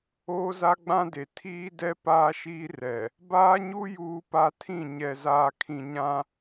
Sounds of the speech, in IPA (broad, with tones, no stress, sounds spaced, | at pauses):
oː˦ z a˦ ɡ͡b ã˦ d e˨ tʰ iː˦ d ɛ˦ p aː˦ ʃ iː˦ r ɛ˨ | b aː˦ ɲ u˦ j uː˦ p a˦ tʰ ĩ˦˨ ɲ ɛ˨ z aː˨ kʰ ĩ˨ ɲ ã˦